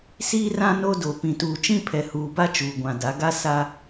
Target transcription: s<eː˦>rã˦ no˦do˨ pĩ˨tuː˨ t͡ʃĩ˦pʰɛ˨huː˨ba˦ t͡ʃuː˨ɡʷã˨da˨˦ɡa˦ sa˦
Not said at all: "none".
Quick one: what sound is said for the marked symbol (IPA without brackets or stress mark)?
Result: iː˦